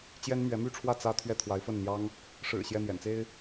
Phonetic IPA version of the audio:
t͡ɕ j ɛ˥ n m ɥ ɛ˧˥ m y˥˧ ʈ͡ʂʰ w ä˥˩ t͡s ä˥ t̪ʰ ɥ ɛ˥˩ t̪ʰ w a˧˥ ɪ̯ f ə˥˩ n n̪ j ɑ˥ ŋ | ʂ ɻ̩˨˩ ɕ j ɛ˥˩ n̪ j ɛ̰˨˩ n t͡s e˥ ɪ̯

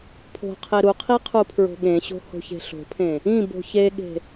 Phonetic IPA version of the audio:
pʰ o̤ qʰ e ɾ u qʰ i qʰ u pʰ ɹ o̤ ɠ ẽ ɕ o̤ h o̤ ç e̤ ɬ o̤ pʰ ẽ | ĩ b o̤ ç e ɠ e̤

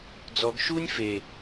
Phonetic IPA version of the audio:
d͡z ɔ ɡ ʃ uː nʲ f e

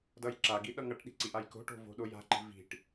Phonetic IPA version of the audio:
d ʌ j ǁ a ɡ i ɗ ʌ ŋ ʌ ʈ ɗ i̤ ǀ i ʔ a j k o̤ ʈ o̤ v o̤ ɗ o j a̤ ǃ i̤ v i̤ ʈ

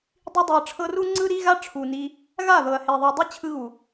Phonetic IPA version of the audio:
dˤ i˧ dˤ ɛ˨ ɐ̯ ʈ͡ʂʰ ɤ˧ r u˦ ŋ͡ǀ ɯ˧ ɾ i˧ ɣ a˦ ʈ͡ʂʰ u˨ n i˧ | ɣ a˦˨ ð ɤ˨ ɐ̯ h e˨ ðˤ a˨ dˤ i˦ t͡ɕʰ ɯ˧ ɣ u˨

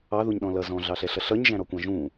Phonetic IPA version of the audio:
ɑ ð u ɲ ɗ ɔ̃ l ʌ z ɔ̃ ɮ ɑ ɬ ɛ ɬ ʌ ɬ ʌ ɲ ʒ æ̃ ɾ ɔ kʷ ɑ̃ ʒ ũ

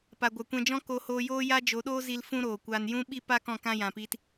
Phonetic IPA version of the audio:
p a˨ ɡʷ a˨ kʷ ɛ̃˧ d͡ʒ ɔ̃˦ k o˧ h oː˧ j oː˦ j a˦ d͡ʒ o˨˦ ɗ oː˦ z i˧ l f ũ˦ ɾ oː˨ kʷ aː˧ n j ũ˦ ɓ i˦ p a˦ k ɔ̃˦˨ k ã˦ j ã˨ p i˦ t

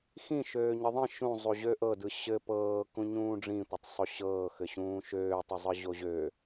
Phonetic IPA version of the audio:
x ĩ ʃ øː ɲ ə ðˤ ĩ ʃ ũ zˤ u ʑ ø ʔ ɤ d ɯ ɕ ɘ p ɤː k ũ ɲ ũː ɖ͡ʐ ĩ tʷ ɘ tˤ sˤ o ɕ ɤː x ɘ ɕ ũː ʃ øː tˤ ə zˤ ɯ ʑ o ʑ ø

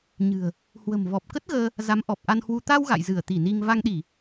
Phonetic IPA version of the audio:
ɲ ɨ̤˨˩ ə̯ | h w ə̤˨˩ m v ɔ˨˩ p̚ k ə˦˥ t̚ ɣ əː˧ | z a˨˦ m ʔ ɔ˨˩ p̚ ʔ a˧ n h w u˧ t̪ a˧ w ɣ a̰˧˨ j z ɨ˧˩ ə̯ t̪ i˧˩ n i˧ ŋ v a˧ ŋ ɗ i˧˩˨

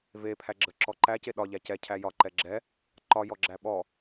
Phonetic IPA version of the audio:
v e pʰ æ ɡ͡ǁ ə ǁ ɔ ǃ æ c e ɗ ɒ ʎ æ c ɛ cʰ æ j ɒ ǃ ɛ ɡ͡ǁ ɛ | ǃ ɒ j ɔ ɡ͡ǁ æ ɓ ɔ

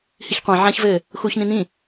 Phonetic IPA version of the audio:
h i ç qʷ ã ʕ ã ç v ɘː | x uː ç n ĩ n ĩ

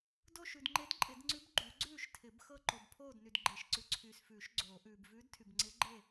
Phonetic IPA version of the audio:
d o˥˨ ʃ ʉ˨ d ŋ͡ǃ e˧˥ d ǃʼ ɪ˨˩˦ d ŋ͡ǀ ʉ˧˥ b ɡ͡ǃ y˨˩˦ ɡ͡ǀ ʉː˥˨ ʃ tʰ ɪ˨˩˦ b x ɤ˥˨ ǃ o˨ b pʰ oː˥˨ d n y˨ d ɡ͡ǃ e˨˩˦ ʃ ǀ ʉ˨ ǀʰ yː˨ s f ʉː˨˩˦ ʃ ɡ͡ǀ oː˨˩˦ ʔ ʉː˨ b v ʉː˧˥ d tʰ y˨ b ŋ͡ǀ ɪː˧˥ ɡ͡ǃ e˥˨

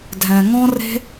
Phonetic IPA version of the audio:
dʱ ɛ̃˨ ŋ ɔ̃˦ r e̤˦

